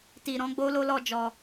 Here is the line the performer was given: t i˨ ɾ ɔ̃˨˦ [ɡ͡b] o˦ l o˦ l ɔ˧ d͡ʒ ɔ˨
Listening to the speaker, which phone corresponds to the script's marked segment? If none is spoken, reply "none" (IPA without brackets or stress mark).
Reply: ɡ͡b